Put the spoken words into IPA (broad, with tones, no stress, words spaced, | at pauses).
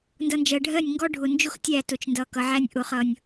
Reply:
ndʌ˨nd͡ʒɜ˨ɖʱɜ˦˨nʲŋɡɔ˦ ɖʱʊ˨nd͡ʒʊ˦x tʲæ˦˨tʊ˨t͡ʃndʌ˨ kʌ˨ʕæ˦nʲ ʔʊ˨ χʌ˨nʲ